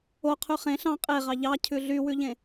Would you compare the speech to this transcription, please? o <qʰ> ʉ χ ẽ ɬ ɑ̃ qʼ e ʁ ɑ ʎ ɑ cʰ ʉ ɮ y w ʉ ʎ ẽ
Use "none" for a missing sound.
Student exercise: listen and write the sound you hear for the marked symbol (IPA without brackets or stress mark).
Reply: qʰ